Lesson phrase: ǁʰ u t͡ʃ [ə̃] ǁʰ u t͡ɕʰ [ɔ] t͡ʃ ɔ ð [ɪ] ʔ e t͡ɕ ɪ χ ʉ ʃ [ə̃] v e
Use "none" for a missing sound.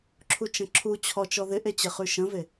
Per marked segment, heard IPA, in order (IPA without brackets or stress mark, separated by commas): ə̃, ɔ, ɪ, ə̃